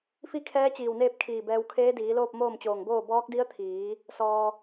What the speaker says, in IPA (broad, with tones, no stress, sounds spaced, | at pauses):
f i˥˨ kʰ ɛː˧˥ t͡ɕ iː˧˩ w n eː˥˨ p̚ kʰ iː˧˩ b ɛː˧ w kʰ eː˧˥ d iː˩˧ l oː˥˨ p̚ m oː˥˨ m t͡ɕ oː˧˩ ŋ b oː˥˨ b ɔː˧˥ k̚ d i˧˥ ə̯ t̪ʰ iː˩˧ | s ɔː˩